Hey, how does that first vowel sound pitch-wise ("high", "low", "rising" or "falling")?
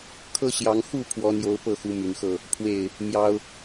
high